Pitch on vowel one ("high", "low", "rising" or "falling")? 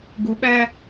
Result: rising